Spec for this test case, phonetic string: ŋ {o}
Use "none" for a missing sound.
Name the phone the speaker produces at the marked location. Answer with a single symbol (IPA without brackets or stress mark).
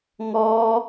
ɔ